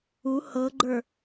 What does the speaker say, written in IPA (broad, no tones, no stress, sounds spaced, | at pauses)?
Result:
u h ɤ ɡ͡ǃ ə˞